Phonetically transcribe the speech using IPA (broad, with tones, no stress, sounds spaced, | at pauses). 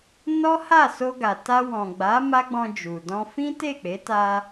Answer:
n ɔ˦ h a˦˨ s o˧ ɡ a˨ t a˧ w ɔ̃˨ ɡ͡b a˨˦ m a˦ ɡ͡b ɔ̃˧ d͡ʒ u˨ d ɔ̃˧ f ĩ˦ t e˦˨ k͡p e˨˦ t a˧